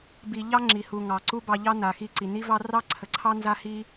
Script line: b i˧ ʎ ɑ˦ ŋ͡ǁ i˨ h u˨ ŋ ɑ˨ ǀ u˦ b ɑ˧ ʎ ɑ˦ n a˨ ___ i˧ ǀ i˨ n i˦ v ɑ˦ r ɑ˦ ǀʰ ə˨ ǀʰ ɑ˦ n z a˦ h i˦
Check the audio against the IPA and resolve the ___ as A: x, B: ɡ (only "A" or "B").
A